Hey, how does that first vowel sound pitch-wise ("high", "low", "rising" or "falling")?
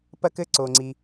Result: high